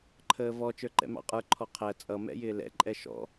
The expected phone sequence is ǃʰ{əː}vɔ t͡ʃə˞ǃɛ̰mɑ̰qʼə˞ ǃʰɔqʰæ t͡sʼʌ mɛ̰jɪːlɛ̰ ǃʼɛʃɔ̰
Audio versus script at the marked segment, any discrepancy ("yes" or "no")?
no